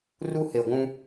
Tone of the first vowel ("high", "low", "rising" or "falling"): high